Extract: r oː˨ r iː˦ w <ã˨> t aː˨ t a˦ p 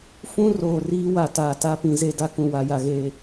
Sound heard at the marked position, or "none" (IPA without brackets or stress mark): a˨